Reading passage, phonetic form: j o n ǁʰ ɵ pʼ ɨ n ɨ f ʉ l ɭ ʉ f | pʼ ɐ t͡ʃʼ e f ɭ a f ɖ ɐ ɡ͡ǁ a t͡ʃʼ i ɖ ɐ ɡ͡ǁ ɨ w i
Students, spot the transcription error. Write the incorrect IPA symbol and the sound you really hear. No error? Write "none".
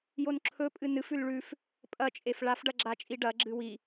none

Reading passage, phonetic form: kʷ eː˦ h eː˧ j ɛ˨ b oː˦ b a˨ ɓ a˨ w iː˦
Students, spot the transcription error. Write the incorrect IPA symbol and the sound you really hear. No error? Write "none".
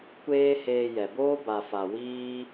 ɓ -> f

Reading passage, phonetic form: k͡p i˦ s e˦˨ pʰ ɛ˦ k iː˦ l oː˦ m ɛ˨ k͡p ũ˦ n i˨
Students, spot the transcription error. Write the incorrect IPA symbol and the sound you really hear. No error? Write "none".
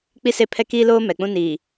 none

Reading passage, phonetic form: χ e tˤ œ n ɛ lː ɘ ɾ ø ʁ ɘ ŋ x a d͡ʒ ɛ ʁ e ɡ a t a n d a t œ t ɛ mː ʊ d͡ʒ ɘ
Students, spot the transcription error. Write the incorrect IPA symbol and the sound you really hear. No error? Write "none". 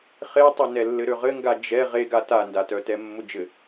x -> ɡ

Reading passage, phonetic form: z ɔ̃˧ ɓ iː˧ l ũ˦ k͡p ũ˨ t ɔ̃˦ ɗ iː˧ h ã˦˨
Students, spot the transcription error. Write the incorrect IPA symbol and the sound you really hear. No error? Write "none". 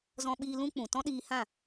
none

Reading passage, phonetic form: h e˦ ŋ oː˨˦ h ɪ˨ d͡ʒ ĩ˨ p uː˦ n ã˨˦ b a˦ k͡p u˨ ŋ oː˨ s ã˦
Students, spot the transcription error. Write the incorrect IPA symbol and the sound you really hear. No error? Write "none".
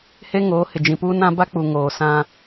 none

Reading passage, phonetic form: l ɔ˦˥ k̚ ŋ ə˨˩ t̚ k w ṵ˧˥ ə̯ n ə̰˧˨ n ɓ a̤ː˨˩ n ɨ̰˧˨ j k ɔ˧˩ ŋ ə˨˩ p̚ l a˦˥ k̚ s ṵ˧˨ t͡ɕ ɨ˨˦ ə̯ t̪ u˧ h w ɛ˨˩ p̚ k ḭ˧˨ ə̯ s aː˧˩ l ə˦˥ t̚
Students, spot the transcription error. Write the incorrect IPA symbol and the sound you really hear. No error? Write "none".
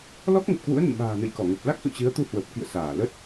ɛ˨˩ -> ə˨˩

